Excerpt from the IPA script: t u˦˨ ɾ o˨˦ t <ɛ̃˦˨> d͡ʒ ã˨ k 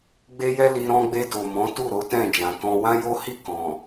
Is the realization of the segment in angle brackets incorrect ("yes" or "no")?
no